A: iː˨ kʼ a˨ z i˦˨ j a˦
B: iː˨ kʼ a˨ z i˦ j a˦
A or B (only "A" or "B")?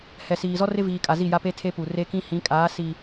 A